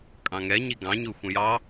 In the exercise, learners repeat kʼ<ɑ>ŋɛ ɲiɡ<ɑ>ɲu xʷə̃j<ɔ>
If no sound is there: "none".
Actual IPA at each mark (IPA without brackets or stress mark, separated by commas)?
ɑ̃, ɑ̃, ɑ